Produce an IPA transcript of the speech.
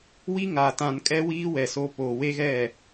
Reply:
w i˦ ŋ a˨ t ã˨ n kʼ ɛ˦ w iː˦ w ɛ˨ s o˦ p oː˨ w e˦ ɣ ɛ˦˨

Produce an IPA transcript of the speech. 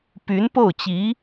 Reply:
p y˧˥ n p o˥˩ ʊ̯ t͡ɕ i˧˥

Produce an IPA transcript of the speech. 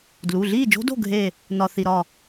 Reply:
d l u˩˧˩ ɮ iː˥˨ d͡ʒ o̤˦˥ d o̤˥˨ ɡʱ e˥˨ | n ɒ˧ θ i˧ ɾ ɒ˥˨

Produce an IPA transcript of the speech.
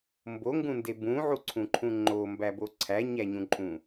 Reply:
m b o ŋ ɡ ũ n d e b ũ ʕ u ǀʰ ũ ǃʰ ũ ŋ͡ǃ o m b æ b o ǀʰ æ ɲ æ ɲ ũ ǃʼ ũ

